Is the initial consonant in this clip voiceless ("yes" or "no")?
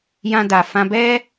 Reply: no